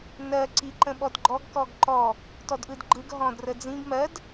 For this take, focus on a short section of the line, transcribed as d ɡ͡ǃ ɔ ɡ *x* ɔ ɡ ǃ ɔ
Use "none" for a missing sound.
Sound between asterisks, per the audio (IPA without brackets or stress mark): k